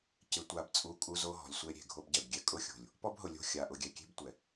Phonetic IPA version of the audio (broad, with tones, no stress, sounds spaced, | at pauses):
c ɪ˨ tʷ a˨ b t͡sʼ u˦˨ kʼ u˦ z o˦ ɦ ɔ̤˨ lʲ sʷ e˦ ɾʲ e̤˨ ɡʱ o˦ b ɟ ɛ˨ b ɡʲ ɛ˦ kʼ ʊ˦ xʲ o̤˨ lʲ | p ɔ˦ b ɦ ʊ˨ lʲ o̤˦ xʲ a˨ ʔ ʊ˨ ɡʲ ɛ˨ kʲ e̤˦ b tʷ ɛ˨